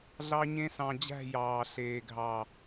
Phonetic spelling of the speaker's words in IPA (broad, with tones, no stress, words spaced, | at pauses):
ɮɑ˦ɲẽ˦sɑ̃˧ d͡ʑæ̤˦˨ jɑː˨ ɬeː˨ɡʱɑ˨